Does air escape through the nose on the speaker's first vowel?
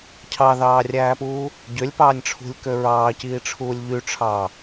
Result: no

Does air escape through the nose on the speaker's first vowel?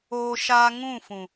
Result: no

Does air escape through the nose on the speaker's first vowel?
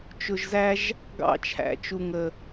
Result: no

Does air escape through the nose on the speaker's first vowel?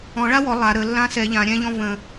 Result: yes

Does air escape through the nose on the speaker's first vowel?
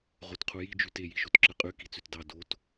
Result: no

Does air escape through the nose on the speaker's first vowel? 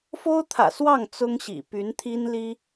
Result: no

